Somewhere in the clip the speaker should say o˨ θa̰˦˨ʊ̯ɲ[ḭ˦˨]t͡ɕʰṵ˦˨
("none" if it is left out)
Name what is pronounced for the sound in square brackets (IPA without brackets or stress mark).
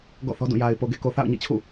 ḭ˦˨